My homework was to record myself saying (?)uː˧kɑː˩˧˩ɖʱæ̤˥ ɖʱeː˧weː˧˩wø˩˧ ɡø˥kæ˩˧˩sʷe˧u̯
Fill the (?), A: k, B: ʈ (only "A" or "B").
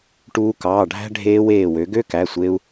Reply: B